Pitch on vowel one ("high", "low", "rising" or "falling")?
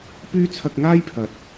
high